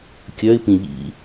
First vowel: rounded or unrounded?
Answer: rounded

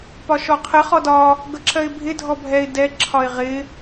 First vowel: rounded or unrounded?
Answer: rounded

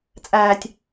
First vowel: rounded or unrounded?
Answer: unrounded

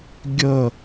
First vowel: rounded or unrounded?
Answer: unrounded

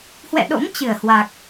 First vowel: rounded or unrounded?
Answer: unrounded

